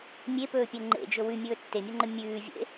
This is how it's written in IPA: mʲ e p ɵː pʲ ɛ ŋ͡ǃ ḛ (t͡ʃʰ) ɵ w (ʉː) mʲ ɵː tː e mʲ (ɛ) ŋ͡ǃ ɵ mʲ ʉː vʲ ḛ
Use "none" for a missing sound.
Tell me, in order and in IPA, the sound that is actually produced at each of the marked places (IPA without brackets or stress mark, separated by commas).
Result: d͡ʒ, ʉ, ɛ